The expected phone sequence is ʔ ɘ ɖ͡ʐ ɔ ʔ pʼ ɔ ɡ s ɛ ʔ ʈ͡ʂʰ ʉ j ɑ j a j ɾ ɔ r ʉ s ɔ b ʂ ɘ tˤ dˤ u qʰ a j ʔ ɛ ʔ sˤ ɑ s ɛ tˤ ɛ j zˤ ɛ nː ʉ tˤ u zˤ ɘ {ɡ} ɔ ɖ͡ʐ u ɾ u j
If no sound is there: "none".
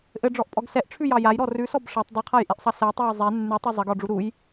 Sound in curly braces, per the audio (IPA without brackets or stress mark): ɡ